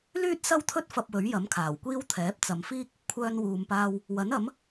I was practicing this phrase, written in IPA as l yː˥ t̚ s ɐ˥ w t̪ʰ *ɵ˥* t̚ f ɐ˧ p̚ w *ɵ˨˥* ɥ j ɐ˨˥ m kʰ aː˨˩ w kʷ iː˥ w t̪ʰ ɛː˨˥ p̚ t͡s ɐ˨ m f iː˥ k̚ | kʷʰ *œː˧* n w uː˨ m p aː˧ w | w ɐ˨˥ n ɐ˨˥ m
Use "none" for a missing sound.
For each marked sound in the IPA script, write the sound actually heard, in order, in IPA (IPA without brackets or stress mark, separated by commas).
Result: ɵ˥, ɵ˨˥, œː˧